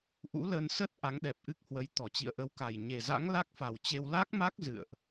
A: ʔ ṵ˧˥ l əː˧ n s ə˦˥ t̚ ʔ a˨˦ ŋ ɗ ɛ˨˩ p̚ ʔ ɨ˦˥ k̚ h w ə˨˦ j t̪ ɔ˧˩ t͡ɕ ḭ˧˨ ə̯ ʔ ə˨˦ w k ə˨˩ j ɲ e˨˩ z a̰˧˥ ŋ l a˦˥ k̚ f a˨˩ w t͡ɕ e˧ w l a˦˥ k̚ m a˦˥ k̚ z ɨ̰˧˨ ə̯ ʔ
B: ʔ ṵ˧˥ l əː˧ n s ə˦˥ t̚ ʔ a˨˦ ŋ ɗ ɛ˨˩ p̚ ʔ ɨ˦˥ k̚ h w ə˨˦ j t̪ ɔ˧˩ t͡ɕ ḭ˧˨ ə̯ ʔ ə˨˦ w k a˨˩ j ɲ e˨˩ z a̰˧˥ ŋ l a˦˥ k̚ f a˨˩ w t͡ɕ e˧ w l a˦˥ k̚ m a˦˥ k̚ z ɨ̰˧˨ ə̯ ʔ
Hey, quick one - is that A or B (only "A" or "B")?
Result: B